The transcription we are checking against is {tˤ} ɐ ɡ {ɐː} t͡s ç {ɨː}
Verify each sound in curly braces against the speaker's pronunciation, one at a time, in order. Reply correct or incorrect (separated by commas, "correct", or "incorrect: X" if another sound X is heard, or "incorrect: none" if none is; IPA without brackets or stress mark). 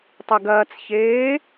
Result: correct, correct, incorrect: eː